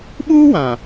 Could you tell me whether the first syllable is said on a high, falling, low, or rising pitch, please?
high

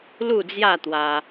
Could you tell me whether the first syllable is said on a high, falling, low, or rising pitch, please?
falling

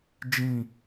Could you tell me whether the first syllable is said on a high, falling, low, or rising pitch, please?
low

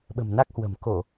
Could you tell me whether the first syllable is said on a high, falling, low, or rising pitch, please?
low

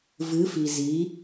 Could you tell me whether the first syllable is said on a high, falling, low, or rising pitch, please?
rising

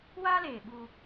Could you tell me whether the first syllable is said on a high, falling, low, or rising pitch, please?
high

